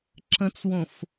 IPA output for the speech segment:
ǁə̃t͡swõf

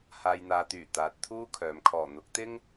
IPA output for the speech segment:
haː˨jn̪aː˨t̪yː˨˩ t̪aː˨t̚t̪ʰuː˥kʰœː˨m kʰɔː˨˩n̪ʊ˨˥k̚t̪ɪ˥ŋ

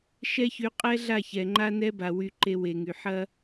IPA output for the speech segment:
ʃɛ˦çy˨˦ qʼɛ˦ɮa˦˨çɛ˨ ŋ͡ǃa˦nɛ˦ba˨ wy˨ ǃe˦we˨ŋy˨ ħɐ˦

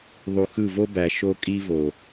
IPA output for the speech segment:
ðˤu˨xɯ˦˨ vo˦bæ˨ ʃo˦kʼi˦vo˨

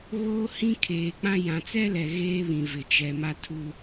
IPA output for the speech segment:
ɣoː˦hĩ˦kʰeː˨k͡pã˦ jã˨t͡sɛ˦lɛ˨ ɣeː˦βĩ˨vɪ˨ t͡ʃɛ˨ ma˦tʰu˦

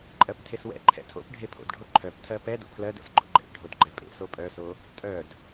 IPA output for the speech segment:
ǃʼɜptʰeswɛ̰ ǃʰɛ̰tʰo̰p ɖʱepʰo̰dɖʱo ǃʰœp tʰɜpɛ do̰pʰlɜd ɛ̰sɡ͡ǃo̰ɡ͡ǃɛ̰p ɖʱodɡ͡ǃɛpʼḛ sopʼœso | tʼœd

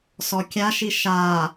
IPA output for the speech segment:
sɔkʲaʃi ʃa

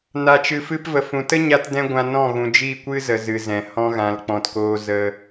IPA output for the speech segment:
na˧t͡ʃɨ˧fɨ˦p və˨fũ˨ tə˦ɲa˧tdɛ̃˧ ɡʷã˧nɔ̃˦˨ ɣũ˨d͡ʒi˦˨kʷɨ˦zə˨ zɨ˨zɛ̃˨ hɔ̃˧ɣã˨lk͡pɔ̃˨tkoː˧ zə˦

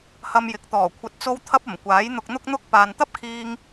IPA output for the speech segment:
hɐ˧mjɪ˨˥k̚t̪ɔː˨˩ kʷʰɐ˨t̚t͡so˧w t̪ʰɐ˥p̚ ɐ˨˩mkʷaː˨˥jn̪ʊ˧k̚ n̪ʊ˥k̚n̪ʊ˥k̚ paː˨nt̪ɐ˥p̚kʰiː˧ŋ

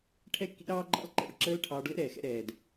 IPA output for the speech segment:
ʈʰɛ˦kːḭ˦ ɾɑː˦ɡ͡ǃɑ̰˦l ǃɛ̰˦˨ɭǁəː˦lʈʰɑː˧ɖ lə̰˦ɾɛː˨xɛ̰˧ ɾɛː˨d

